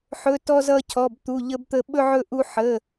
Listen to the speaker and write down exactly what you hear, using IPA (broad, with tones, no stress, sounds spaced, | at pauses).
ħ ɵ˧˥˧ t ɔ˥ z ʌ˥ cʰ ɔ˧˥˧ b t̪ u˧˥˧ ʎ ə˥ b t̪ ə˥ ɓ ɵ˥ ʕ ɵ˥ ʔ u˥ ħ ə˧˥˧